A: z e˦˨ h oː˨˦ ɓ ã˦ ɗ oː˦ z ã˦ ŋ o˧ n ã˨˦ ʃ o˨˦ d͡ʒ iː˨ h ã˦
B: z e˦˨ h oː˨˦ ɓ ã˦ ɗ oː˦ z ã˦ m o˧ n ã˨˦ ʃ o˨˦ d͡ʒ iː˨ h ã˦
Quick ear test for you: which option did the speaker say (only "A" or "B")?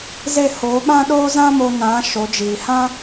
B